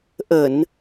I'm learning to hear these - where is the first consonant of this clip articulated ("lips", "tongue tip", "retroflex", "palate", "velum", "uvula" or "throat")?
throat